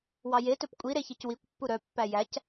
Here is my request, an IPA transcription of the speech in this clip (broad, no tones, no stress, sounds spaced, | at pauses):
w ɑ j e t ɵ p kʷʼ i ɾ e ç e c w i kʷ pː u ɾ œ pː æ j æ c